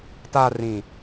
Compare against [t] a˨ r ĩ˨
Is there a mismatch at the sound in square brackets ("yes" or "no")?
no